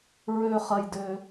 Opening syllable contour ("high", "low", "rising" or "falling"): high